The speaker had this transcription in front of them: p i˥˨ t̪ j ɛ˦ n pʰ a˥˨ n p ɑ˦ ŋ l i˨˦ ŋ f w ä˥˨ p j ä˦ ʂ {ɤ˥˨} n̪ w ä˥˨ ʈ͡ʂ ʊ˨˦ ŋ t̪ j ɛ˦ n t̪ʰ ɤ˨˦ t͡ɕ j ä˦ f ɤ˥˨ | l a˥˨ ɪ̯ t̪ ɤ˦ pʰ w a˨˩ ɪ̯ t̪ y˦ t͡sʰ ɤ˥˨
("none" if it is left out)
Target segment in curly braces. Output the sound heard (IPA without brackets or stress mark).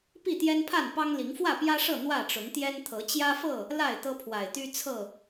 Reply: ɤ˥˨